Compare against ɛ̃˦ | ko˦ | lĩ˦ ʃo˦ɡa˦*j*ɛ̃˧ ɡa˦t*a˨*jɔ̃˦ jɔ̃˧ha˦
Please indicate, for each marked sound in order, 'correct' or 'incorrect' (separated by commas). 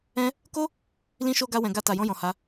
incorrect, incorrect